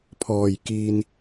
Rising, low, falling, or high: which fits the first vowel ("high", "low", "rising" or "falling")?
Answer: low